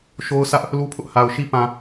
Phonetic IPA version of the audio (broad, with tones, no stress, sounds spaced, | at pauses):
ʃ o˦ ʊ̯ s ä˦ ʔ | l u˦ pʰ ʊ˦ ʔ h a˨ ʊ̯ ʃ i˦ p ã˨